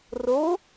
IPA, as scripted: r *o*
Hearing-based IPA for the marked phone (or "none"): o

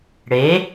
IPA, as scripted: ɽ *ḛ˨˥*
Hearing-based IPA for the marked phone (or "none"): e˨˥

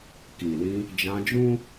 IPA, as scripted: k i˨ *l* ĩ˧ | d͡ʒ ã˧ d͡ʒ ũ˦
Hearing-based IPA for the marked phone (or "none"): l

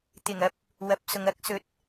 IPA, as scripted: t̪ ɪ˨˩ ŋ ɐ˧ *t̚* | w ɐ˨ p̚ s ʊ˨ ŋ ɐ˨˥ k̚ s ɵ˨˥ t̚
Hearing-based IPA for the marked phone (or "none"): p̚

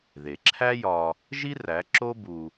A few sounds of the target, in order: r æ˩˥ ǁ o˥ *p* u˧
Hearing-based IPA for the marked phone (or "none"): b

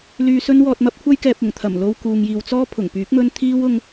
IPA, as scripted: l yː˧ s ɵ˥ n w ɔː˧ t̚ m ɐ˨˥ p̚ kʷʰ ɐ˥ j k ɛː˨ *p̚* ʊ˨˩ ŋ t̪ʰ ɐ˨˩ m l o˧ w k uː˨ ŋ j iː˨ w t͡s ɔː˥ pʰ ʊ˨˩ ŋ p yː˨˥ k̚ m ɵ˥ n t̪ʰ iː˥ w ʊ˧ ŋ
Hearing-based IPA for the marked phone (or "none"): p̚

